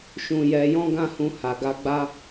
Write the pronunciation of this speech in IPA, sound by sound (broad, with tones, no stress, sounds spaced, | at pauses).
ʃ ũ˧ j ɛ˧ j ɔ̃˦ ɡ ã˦ h ũ˧ h a˨ ɡ a˧ ɡ͡b a˦